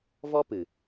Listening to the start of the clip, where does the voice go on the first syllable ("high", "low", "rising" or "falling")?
high